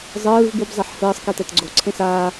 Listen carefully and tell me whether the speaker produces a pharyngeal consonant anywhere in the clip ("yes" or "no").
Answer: yes